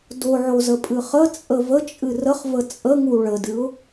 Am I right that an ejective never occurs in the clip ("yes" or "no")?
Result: no